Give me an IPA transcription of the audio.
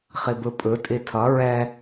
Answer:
χibɯpʼɯ tʼitʰʌ ɹɛ

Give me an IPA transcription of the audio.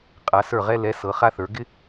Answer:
qʼa˩˧sə˞˧˩ʁɛ˧ lɛ˩˧ sɤ˩˧χa˧ θə˞˩˧ ɡɪ˥

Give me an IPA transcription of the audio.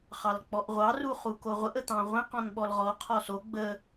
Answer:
χɑlk͡pɔʔʁʷɑ ruχukoʁʷəʔ ət̪ɑ̃ʁʷẽq ɔ̃nɓɔlʁɔ qʰɔso ɡ͡bə

